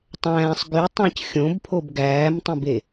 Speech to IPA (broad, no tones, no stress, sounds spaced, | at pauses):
tˤ æ̃ː sˤ ɡ y tˤ æ̃ c xʲ õ b pʰ o b ɡ æː m tˤ ẽ b e